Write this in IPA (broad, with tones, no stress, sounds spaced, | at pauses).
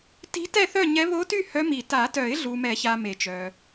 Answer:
t i̤˧˥ t ɛ˥˨ θ œ˥˨ ɲ ɛ˧˥ β o˧˥ t y˥˨ h œ˧˥ m i˨˩˦ t a˨˩˦ t œ˨˩˦ ɪ̯ ɮ u˨ m ɛ˨˩˦ ç a˨ m e˨˩˦ t͡ʃ œ˨